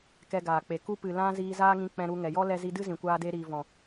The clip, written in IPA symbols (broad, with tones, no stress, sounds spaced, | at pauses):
k ɛ˧ ɡ aː˨ k͡p e˨ k u˦ p ɨ˨ l ã˧ z iː˧ z aː˦ ŋ ĩ˧ k͡p ɛ̃˧ ɾ u˧ ŋ ɛ˨ j ɔ˦ l ɛ˧ z i˧ d ɨ˦ z ĩ˨ kʷ aː˧ d e˧ ɾ iː˨ v ɔ̃˨